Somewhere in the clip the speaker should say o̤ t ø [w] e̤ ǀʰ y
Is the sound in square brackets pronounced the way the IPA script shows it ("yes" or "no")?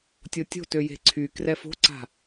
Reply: no